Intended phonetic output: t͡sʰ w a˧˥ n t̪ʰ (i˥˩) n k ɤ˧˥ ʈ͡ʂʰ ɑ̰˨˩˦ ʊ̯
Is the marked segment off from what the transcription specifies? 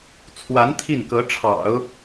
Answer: no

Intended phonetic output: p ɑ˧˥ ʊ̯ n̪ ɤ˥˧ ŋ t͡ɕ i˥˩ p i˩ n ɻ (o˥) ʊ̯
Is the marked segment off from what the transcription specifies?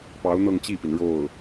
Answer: yes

